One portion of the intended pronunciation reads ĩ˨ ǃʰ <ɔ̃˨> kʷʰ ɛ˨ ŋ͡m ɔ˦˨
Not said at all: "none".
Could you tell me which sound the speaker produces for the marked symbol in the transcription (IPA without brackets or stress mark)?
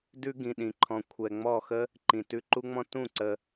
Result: ɔ̃˨